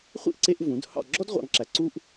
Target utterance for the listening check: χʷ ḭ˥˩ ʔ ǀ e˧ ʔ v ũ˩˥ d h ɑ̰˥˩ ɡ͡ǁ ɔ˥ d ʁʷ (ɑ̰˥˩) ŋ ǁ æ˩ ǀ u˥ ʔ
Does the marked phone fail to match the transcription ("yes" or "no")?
yes